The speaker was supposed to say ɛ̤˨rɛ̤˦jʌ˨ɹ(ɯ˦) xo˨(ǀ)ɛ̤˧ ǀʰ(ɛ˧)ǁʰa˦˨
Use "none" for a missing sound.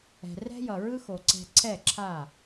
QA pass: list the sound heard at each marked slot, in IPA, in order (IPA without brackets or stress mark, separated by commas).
ɯ˦, ǀ, ɛ˦˨